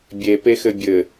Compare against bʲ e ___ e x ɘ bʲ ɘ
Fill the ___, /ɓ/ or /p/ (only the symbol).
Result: p